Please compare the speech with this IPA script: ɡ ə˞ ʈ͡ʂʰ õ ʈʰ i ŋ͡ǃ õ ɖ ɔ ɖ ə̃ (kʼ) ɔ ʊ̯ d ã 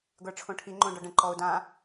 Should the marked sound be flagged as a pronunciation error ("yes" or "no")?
yes